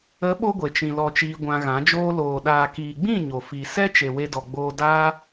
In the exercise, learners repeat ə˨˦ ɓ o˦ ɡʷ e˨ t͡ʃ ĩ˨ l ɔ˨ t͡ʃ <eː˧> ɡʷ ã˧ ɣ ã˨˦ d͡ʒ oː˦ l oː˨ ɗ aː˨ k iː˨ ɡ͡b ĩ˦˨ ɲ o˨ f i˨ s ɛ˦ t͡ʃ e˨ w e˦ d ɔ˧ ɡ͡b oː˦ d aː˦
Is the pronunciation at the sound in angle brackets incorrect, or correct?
incorrect